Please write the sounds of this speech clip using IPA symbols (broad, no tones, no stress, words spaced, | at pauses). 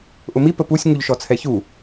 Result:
ʔʊmi pəpusʲ ŋuʎʃɔt͡sʰɛçu